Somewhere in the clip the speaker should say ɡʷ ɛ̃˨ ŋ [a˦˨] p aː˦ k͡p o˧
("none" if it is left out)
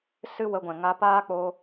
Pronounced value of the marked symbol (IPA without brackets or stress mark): a˧